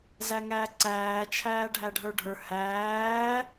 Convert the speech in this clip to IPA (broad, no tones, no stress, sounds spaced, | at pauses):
z æ ŋ æː ǀ æː t͡ʃʰ æː ɖʱ æ ɖʱ ə˞ ɖʱ ə˞ h æː